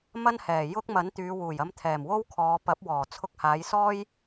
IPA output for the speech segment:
m ɐ˥ n h ɛː˨˩ j ʊ˥ k̚ m ɐ˨˥ n t̪ yː˨˧ w uː˨˩ j ɐ˧ m t̪ʰ ɛː˨˩ m w o˥ w kʰ ɔː˨˧ p ɐ˨˥ p̚ w ɔː˨˩ t͡sʰ ʊ˧ k̚ h aː˨˧ j s ɔː˥ j

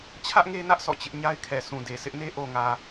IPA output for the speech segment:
t͡ɕʰ ä˦ ʔ ŋ e˦ n ä˦ ʔ sʰ ɔ̰˦˨ t͡ɕ ɪ˦ ʔ ɲ a˦ ɪ̯ kʰ ɛ˨ sʰ ũ˨ d e˨ sʰ ɪ˦ ʔ n e˦ ʔ o˨ ŋ ä˨

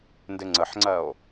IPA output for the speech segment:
n d ɪ ŋ͡ǀ ə ħ ŋ͡ǀ ɜ o̯

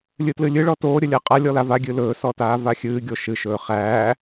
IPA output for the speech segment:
lʲ ɨ t l ɨ lʲ ɨ ɭ ɔ t oː ɾʲ ə lʲ æ qʼ a lʲ ɔ l a v a ɡʲ ɨ l ɵː s ɔ t aː v a xʲ ɨː ɡʲ o ʃ ɨ ʃ ɵː χ æː

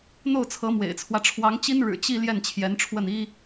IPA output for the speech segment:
n̪ o˥˩ ʊ̯ t͡sʰ ɤ˧˥ m w ḛ˨˩ ɪ̯ t͡sʰ w ä˦ ʈ͡ʂʰ w ɑ˧˥ ŋ t͡ɕ i˥ n ɻ ɻ̩˨˩ t͡ɕ i˥˧ l j ɛ˥˩ n t͡ɕʰ j ɛ˧˥ n ʈ͡ʂʰ w ə˥˩ n i˥

